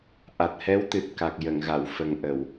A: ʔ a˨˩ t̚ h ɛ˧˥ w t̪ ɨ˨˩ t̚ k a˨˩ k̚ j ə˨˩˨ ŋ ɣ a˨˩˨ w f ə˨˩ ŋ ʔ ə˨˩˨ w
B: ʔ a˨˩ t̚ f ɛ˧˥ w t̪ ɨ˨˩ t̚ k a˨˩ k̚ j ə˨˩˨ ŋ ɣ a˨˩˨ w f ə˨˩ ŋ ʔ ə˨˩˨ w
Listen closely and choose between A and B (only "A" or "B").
A